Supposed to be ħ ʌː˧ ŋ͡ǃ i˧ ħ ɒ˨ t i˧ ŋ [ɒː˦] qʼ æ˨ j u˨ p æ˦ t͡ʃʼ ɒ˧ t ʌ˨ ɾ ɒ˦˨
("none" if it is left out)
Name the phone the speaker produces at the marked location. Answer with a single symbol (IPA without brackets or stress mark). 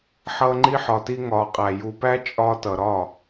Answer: ɒː˨